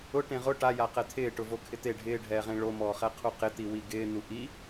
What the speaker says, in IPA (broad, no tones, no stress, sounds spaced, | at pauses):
ʊ ʈ ẽ ʁ ʊ ʈ a j a q ɛ t̪ʰ ɪː ʈ ʊ v o kʰ ɪ t̪ e ɖʱ ɪː ɖʱ ɛː ʁ ẽ ɭ o m ɔː χ ɛ qʰ u q ɪ t̪ i w i ɡ ɪː n̪ u ʔ i